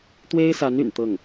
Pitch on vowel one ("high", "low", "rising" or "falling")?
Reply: high